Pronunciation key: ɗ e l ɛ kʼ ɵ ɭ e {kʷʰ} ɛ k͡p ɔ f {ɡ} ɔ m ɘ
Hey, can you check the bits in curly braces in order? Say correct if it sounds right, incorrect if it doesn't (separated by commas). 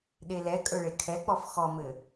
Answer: incorrect, incorrect